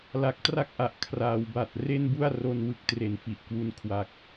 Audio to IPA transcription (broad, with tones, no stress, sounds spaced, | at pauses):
l a˨˩ k̚ t r a˥˩ k̚ ʔ a˨˩ ʔ kʰ r aː˩˦ w b a˨˩ t̚ r e˥˩ n b u˥˩ a̯ r o˧ n w ɯ˨˩ k̚ t r e˨˩ n f i˨˩ ʔ k w u˧ n kʰ w a˨˩ k̚